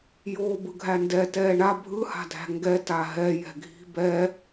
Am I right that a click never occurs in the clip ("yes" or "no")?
yes